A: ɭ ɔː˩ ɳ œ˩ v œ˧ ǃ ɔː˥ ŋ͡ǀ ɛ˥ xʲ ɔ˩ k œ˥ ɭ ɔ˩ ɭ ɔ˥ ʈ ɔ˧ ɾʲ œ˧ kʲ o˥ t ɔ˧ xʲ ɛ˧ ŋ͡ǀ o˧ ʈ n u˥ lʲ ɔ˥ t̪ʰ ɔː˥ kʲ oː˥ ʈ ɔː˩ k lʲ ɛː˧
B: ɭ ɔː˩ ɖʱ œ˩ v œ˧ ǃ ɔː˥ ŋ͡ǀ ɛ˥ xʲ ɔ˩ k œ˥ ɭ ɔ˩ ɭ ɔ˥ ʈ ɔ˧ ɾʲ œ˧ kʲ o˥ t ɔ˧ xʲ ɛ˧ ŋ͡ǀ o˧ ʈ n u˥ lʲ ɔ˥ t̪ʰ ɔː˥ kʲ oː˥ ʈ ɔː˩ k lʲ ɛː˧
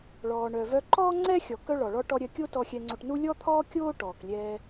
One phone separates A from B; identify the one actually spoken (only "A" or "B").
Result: A